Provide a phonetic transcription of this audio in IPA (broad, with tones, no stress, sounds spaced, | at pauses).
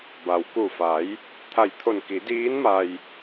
b a˩ w k u˧˩ f a˩˧ j | t̪ʰ a˧˩ j t̪ʰ o˧˩ n k i˩˧ d iː˧˥ n m a˧ j